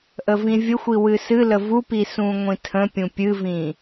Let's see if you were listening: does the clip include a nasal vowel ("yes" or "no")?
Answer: yes